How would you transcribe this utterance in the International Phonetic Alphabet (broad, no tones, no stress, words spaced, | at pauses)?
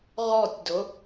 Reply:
ʁɔtʲdʊ